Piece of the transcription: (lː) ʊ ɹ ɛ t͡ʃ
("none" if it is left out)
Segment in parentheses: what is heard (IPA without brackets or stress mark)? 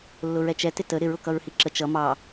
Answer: lː